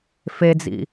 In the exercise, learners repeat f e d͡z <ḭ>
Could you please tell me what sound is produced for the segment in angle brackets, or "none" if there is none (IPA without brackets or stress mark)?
ḭ